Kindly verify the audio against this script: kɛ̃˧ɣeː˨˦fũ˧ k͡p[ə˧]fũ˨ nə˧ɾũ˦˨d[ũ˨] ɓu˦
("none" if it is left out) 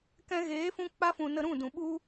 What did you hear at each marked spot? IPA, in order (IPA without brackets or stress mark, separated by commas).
a˧, ũ˨